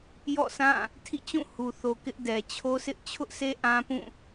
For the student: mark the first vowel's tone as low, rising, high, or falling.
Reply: falling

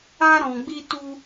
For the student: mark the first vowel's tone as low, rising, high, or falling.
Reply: high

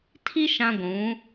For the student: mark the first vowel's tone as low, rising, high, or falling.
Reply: high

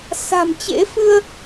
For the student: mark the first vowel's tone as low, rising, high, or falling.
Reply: low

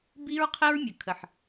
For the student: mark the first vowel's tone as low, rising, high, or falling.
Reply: high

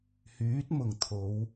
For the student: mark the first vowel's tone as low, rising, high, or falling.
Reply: rising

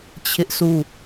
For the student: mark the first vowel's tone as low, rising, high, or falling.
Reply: high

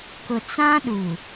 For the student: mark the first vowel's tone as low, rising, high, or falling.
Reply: low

